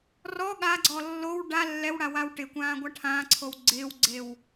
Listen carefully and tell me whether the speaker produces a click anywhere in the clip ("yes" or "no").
yes